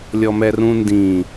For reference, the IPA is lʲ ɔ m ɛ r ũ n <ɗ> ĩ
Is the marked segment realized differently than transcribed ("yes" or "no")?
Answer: yes